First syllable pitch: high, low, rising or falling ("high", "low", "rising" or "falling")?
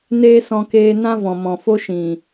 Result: high